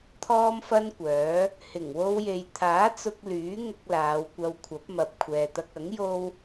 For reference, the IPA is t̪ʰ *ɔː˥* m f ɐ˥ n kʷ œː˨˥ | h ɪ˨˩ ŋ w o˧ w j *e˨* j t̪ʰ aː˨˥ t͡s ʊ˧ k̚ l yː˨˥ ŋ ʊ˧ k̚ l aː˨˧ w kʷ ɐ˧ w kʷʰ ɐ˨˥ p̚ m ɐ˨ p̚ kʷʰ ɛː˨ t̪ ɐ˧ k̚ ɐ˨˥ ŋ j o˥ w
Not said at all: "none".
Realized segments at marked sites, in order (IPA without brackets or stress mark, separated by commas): ɔː˥, e˨